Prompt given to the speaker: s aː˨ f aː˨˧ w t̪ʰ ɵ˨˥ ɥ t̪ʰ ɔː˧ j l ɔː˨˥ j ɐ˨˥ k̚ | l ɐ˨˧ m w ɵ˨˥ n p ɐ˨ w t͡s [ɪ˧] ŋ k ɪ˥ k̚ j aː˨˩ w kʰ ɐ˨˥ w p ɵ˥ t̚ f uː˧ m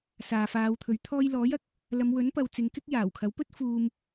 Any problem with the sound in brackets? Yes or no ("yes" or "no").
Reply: yes